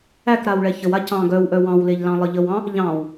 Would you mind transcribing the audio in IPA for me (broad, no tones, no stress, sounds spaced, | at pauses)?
æ k ɾ a w ɭ ɛ ç ə w a c ɑ̃ ɡ œ w ʔ œ w ɑ̃ w l e ʎ l ɑ̃ lˠ ə ʎ ə w ɑ̃ | ʎ ɑ̃ w